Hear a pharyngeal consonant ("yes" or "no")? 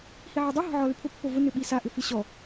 yes